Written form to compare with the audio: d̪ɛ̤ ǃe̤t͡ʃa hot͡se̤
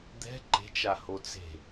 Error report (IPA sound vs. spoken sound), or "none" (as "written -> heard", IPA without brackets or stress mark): none